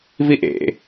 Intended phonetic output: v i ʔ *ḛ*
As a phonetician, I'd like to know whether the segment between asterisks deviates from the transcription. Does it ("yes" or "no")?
no